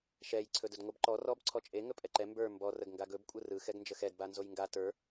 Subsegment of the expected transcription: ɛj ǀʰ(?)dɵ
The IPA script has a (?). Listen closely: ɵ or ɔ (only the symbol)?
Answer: ɵ